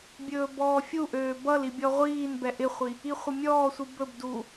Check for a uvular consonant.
present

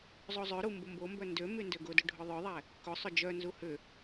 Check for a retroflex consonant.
present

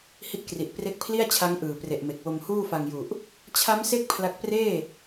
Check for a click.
absent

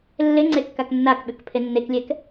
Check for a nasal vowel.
absent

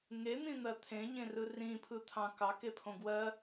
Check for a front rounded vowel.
absent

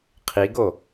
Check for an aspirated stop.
present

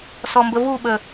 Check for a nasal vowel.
absent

